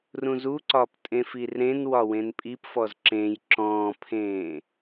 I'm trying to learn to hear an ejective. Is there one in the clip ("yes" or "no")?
yes